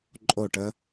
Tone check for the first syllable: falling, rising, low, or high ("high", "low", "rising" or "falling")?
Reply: falling